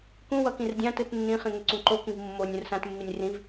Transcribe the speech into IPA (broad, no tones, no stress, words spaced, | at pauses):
kũ wʌkĩrdʲãtɯt nːĩχĩ ŋeǀũǃokĩv mːonʲ ũrsãtmːinʲ rĩv